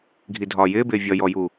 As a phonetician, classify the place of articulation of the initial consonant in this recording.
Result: velar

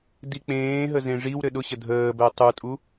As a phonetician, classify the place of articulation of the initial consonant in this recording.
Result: alveolar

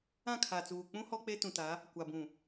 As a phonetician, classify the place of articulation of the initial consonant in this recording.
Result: velar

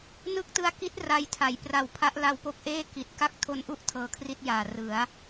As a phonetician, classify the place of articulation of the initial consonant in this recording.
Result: alveolar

